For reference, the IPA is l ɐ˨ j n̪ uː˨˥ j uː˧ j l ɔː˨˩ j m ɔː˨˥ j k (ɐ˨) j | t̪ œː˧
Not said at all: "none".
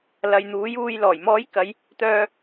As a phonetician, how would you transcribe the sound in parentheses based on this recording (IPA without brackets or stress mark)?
ɐ˨˧